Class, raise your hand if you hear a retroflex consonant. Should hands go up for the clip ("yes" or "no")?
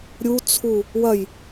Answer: no